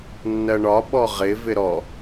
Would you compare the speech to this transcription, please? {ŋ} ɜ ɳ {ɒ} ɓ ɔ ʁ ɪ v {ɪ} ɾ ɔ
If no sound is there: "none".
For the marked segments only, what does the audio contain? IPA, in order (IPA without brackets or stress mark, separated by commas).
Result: nː, ɒ, ɪ